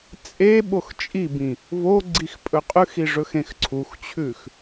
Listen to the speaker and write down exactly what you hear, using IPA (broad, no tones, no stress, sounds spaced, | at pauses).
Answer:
t͡sʼ e ɓ o x t͡ʃʼ i b ĩ | v o ɡ͡ǀ i x pʼ ɵ qʼ ʉ x i ʐ ɵ x ẽ x ǀʰ u x t͡ɕʰ ʉ x